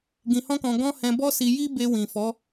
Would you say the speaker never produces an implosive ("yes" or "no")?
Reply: yes